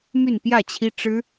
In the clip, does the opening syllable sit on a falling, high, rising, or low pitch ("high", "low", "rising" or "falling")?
falling